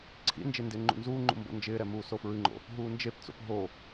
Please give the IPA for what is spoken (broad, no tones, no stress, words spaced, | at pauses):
ǀʰḭnd͡ʒe ndɪːŋ͡ǃṵnzuːŋ͡ǃṵ mbo̰nd͡ʒɪːɾɛ muːsofɹɨŋ͡ǃo̰ | ɦuːnd͡ʒept͡so̰p ɦo